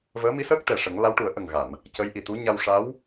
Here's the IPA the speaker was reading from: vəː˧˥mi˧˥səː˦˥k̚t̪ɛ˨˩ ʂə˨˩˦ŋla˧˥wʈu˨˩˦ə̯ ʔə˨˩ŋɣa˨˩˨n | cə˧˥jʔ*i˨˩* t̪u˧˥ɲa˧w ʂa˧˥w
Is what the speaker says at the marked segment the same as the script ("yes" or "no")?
yes